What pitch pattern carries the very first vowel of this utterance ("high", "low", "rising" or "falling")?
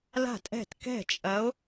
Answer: falling